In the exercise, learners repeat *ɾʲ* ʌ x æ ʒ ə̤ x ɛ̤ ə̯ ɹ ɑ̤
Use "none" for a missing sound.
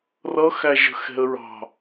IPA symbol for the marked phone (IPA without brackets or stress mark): r